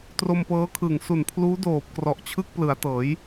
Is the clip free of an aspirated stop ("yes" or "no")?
no